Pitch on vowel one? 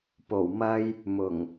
low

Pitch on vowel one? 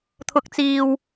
rising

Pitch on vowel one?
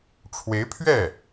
rising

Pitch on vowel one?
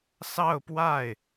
falling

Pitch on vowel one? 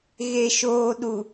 low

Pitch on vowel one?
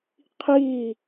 falling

